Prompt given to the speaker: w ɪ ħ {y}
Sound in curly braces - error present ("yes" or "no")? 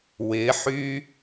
no